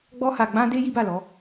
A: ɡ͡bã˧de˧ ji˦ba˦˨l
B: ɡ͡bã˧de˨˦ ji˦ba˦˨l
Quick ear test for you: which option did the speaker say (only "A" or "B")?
A